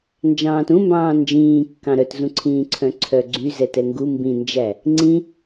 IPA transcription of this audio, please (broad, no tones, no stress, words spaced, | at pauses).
nd͡ʒɑ̃ːtũmbɑ̃ː nd͡ʒĩːkːɑ̃ ɾœtzũǀʰĩːǀʰœ̃ ǀʰœɡ͡ǀy zɛtɛŋɡu mbĩnd͡ʒæ | ŋ͡ǀĩ